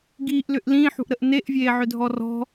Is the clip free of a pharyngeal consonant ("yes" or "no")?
no